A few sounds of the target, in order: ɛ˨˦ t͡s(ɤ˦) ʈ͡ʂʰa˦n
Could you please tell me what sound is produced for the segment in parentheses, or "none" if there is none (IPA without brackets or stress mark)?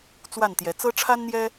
ɤ˦